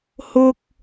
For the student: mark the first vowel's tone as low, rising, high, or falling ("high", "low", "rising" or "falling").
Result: low